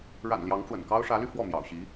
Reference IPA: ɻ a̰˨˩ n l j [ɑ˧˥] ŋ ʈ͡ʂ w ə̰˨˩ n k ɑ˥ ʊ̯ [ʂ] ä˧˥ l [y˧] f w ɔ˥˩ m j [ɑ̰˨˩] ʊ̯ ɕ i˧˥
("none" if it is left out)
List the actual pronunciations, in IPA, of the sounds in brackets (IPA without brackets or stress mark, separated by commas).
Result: ɑ˧˥, ʂ, y˧, ɑ̰˨˩